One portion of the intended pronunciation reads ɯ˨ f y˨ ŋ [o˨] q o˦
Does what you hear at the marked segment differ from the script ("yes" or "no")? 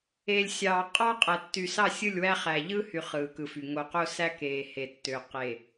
no